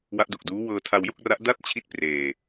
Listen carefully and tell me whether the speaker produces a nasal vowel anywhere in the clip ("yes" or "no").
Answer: no